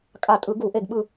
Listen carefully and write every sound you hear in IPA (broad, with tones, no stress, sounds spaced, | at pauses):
kʼ a˧˩ tʼ ɯ˧˩˧ ɡ u˧˩˧ ʔ e˧˩ ɡ ɓ ɯ˧˩